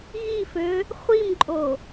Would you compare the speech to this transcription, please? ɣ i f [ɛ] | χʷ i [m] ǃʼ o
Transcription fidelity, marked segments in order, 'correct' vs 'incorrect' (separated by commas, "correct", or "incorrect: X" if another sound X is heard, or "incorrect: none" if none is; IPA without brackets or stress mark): incorrect: ø, correct